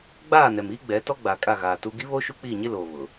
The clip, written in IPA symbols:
ɡ͡b aː˦˨ n ɛ˨ m iː˦ ɡ͡b ɛ˨˦ t ɔ˦ ɡ͡b a˨ kʼ a˦˨ ɣ aː˨ t u˦ ɡ i˦ β o˦ ʃ u˦ k͡p iː˦˨ ɲ ɪ˦ l oː˨ β ʊ˨

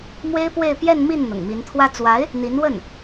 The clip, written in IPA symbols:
m w e˥ ɪ̯ p w e˥˧ ɪ̯ p j ɛ˥˧ n m i˥˩ n n̪ ʊ̰˨˩ ŋ m i˧˥ n t̪ʰ w ä˥ t͡s w a˧˥ ɪ̯ | n̪ i˧˥ n w ə˥˩ n

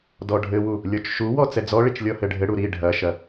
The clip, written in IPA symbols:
d ɔ ɖʱ ɘ w u | lʲ ɔ t͡ʃ ʃ u w ɔ t͡s ɛ d͡z ɔ ɭ i t͡ʃ lʲ ɔ h ɘ ɖʱ ɘ ɽ u ɾ i ɖʱ ɐ ʃ ɐ

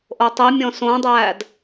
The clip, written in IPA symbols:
ʔ o tˤ i mʲ ɔ̃ s õ dˤ æː d

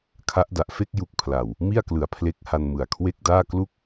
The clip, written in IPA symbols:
kʰ a˦˥ ʔ d a˨˩ ʔ f e˥˩ k̚ j u˨˩ k̚ pʰ l a˨˩ w | m i˥˩ a̯ k l ɯ˩˦ a̯ pʰ l e˦˥ k̚ h a˧ n m ɯ˨˩ a̯ kʰ w e˥˩ k̚ d aː˥˩ k l u˥˩ k̚

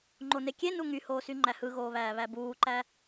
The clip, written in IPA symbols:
ŋ͡ǃ o n e kʲ e n u ŋ y h oː s y ŋ͡ǃ æ h ɯ ɣ oː β æː β æ b uː ǃ æ

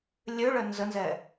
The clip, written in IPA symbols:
lʲ ø ɭ œ n z ə n z ɛ

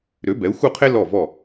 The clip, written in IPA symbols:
ɾ ø˩˥ b ɛ˩˥ u̯ x u˥˩ qʰ e˥ l ɔ˥˩ v ɔ˥˩

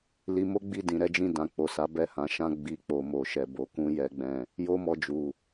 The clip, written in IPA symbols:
l i˧ m o˦ ɡ͡b i˦˨ d ĩ˨ ɾ ɛ˨˦ d͡ʒ ĩ˦˨ d ã˨ k͡p o˨ s a˨˦ b ɛ˦˨ h ã˨˦ ʃ ã˦ ɡ͡b i˧ k͡p o˨ m o˨ ʃ ɛ˨ b o˨˦ k ũ˦ j ɛ˦ ɡ͡b ɛ̃˦˨ | j o˦ m ɔ˧ d͡ʒ u˨

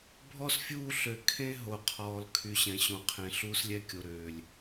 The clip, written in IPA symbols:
bʱ ɔ˦ s fʲ uː˦˨ ɬ ø˨ kʰ ẽ˦ ɦ o˨ qʰ ɔː˨ l kʰ y˨˦ ɕ ɛ̃˨ ɕ õ˨ qʰ ẽ˨ ɬ uː˦ s lʲ ɛ˦ kʲ o˨ ɾ øː˨ lʲ

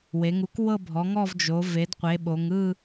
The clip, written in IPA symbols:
w e˩˧ ŋ u˩˥ k w ɤ˦˨ bʱ ɔ˩˧ ŋ ɔ˦˨ v d͡ʒ o˩˧ v e˩˧ d qʷ e˩˧ ɓ o˩˧ ŋ ɯ˦˨

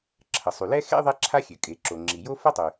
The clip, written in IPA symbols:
ǁʰ ə˩ sˤ y˩ l ɛ˥ x ḛ˥ ðˤ e˥ ǁʰ a˥ xʲ ø˩ kʼ e˩ ǁ o˩ ŋ͡ǁ i˩ j o˥ f ə˥ tˤ y˩

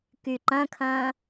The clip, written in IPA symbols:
k y ǃ ɐ̃ kʰ ɐ̃ː

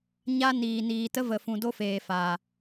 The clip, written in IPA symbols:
ɲ a˦ n iː˨ n iː˨ t ə˦ v ə˨ f ũ˨ d o˦ f eː˨ f a˨

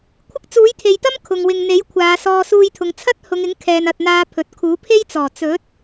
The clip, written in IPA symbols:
kʷʰ ɪ˥ k̚ t͡s uː˨˥ j t̪ʰ e˨ j t̪ ɐ˥ m kʰ ʊ˨ ŋ w ɪ˨ ŋ n̪ e˨˥ j kʷʰ aː˨˧ s ɔː˧ s uː˧ j t̪ʰ ʊ˨˧ ŋ t͡sʰ ɐ˥ t̚ h ʊ˨˧ ŋ ɪ˨˥ ŋ kʰ ɛː˨ n ɐ˨ t̚ n̪ aː˧ pʰ ɵ˨ t̚ kʰ uː˨˥ pʰ e˥ j t͡s ɔː˨˩ t͡s ɵ˨˥ t̚

